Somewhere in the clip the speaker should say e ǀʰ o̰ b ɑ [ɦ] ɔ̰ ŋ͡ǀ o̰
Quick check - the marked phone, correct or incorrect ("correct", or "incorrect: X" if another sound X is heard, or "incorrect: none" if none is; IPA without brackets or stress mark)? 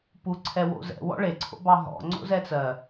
correct